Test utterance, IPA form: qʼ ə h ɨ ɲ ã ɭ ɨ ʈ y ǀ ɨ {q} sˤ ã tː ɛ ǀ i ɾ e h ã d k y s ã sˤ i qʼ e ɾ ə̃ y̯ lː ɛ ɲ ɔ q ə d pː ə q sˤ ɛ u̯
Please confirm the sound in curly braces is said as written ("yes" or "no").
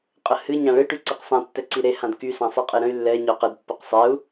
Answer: yes